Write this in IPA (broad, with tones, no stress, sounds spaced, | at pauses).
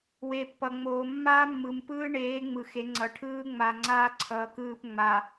w e˨ pː ʌ˨ ŋ͡m oː˨ mː aː˦ mː ɯ˨ m p ɯː˦ ɳ eː˨˦ ŋ͡m ɯ˨ x e˨˦ ŋ͡ǀ ʌ˨ ʈʰ ɯː˦ ŋ͡m a˨ ŋ͡ǀ aː˦ ǀʰ ʌː˨ k ɯː˦˨ p ŋ͡m a˨